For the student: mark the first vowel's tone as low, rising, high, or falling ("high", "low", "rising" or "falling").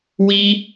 high